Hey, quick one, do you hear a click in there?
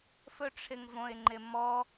yes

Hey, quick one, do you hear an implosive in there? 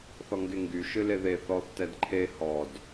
no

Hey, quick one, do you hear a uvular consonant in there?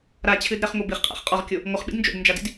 yes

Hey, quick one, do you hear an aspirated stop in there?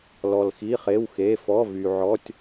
no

